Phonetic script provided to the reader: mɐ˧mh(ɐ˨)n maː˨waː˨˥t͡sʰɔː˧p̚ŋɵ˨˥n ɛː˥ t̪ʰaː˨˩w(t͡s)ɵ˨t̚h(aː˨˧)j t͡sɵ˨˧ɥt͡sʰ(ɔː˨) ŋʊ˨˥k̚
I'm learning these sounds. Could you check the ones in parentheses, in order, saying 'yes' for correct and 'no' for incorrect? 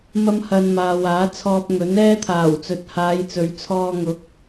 yes, yes, yes, no

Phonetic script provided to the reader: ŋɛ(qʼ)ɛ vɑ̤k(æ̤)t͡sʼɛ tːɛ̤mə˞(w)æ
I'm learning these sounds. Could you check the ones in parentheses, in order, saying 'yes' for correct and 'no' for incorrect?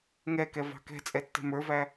no, no, no

